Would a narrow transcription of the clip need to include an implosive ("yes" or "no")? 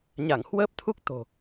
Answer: no